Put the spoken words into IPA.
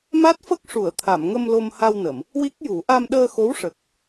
m a˦˥ t̚ f ə˦˥ k̚ ʂ u˨˩˨ ə̯ t̪ʰ a˨˩˨ m ŋ ə˧ m l o˧ m h a˧ w n ə˨˩˨ m | w i˦˥ k̚ j u˨˩˦ ʔ a˧ m ɗ əː˧ x o˧˥ w ʂ ə˨˩ k̚

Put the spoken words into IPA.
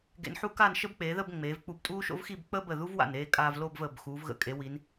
ɡ ḛ˧ n ħ u˥ k a˥˧ n ʃ ə˥ b k͡p eː˩˧ ð ə˥˧ b ŋ͡m eː˩˧ v k͡p u˧ b tʼ uː˥ ʃ o̰˥ v x i˥˧ b k͡p əː˥ b ə˧˩ ð u˥ v w a̰˧˩ n eː˥˧ kʼ aː˧ v l oː˥˧ b v əː˧˩ b x uː˩˧ v ɣ ə̰˧˩ kʼ e˩˧ w i˩˧ n

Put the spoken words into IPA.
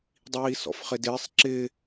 dˤ iː s ɔ̰ f χ ɪ d ɪː sˤ ǁ ɪ

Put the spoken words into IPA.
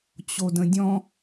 t͡ɕ o d ə̃ dʲ ɔ̃

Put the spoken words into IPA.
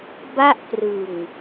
b a˥˩ ʔ p r ɯ˨˩ ŋ

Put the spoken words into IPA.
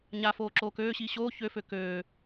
ɲ a f oː ǁ oː k øː ɕ iː ɕ oː ç ø f ø k øː

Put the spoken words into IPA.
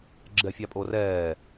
ɡ͡ǁ ɛ fʲ ɑ pʼ o r ɛː

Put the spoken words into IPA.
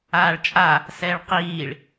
aː ɭ t͡ʃʼ a | s ɛː ɭ q iː ɭ

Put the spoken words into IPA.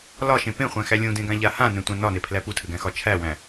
l ɒ ʃ ẽ p ẽ χʷ æ̃ x æ lʲ ũ d ẽ ɡ ã ʎ a h ã n ẽ tʷ ã n ɒ n e pʰ l æ p u tʰ ɘ ɡ æ̃ x ɒ t͡ʃʰ æ w æ̃

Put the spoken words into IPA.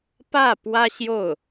p ä˥˩ p w ä˥ ɕ j o˥˩ ʊ̯

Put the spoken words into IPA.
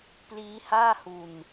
p l iː˦˥ h aː˥˩ h u˧ n

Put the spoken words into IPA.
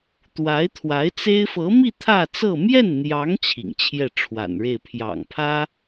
t̪ w a˧˥ ɪ̯ t̪ʰ w a˧˥ ɪ̯ t͡s e˥ ɪ̯ f ɤ˧˥ m i˥˧ t̪ʰ ä˥˧ t͡s ɤ˥˧ m j ɛ˥˩ n n̪ j ɑ˧˥ ŋ t͡ɕʰ ḭ˨˩ ŋ t͡ɕʰ j ɛ˥˩ ʈ͡ʂʰ w a̰˨˩ n ɻ e˥˩ ɪ̯ pʰ j ɑ̰˨˩ ŋ pʰ ä˥

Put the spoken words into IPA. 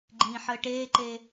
ɡ͡ǃ ĩː ħ əː ʈ eː ǃ eː

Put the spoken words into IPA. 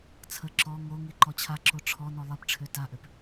t͡sʰ ə ǁ ɔ ŋ o ŋ i ǃ ɔ t͡ɕʰ a ǁ o ʈ͡ʂʰ ɔ n ɔ lˠ i p ʈ͡ʂʰ ø t a ʔ ø p

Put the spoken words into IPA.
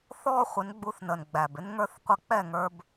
θ ɔː˦ χʷ ɪ˨˦ n ɡ͡b u˧ θ n ə˨ n ɡ͡b æ˨ b ɪ˦ n ŋ ə˞˦ θ qʷ ə˦˨ k͡p ɛ˦˨ ŋ ə˞˧ b

